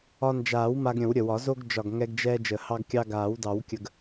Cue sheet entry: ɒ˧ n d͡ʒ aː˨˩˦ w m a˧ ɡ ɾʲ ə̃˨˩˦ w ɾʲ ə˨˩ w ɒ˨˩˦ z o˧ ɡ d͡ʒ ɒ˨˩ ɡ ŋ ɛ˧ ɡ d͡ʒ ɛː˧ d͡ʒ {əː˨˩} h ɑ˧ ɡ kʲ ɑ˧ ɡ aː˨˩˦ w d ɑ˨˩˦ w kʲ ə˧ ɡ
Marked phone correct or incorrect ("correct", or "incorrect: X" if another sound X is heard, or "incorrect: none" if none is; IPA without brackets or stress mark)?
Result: correct